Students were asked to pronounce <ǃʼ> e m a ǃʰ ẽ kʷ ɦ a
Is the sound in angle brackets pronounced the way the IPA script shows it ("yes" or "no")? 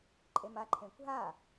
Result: yes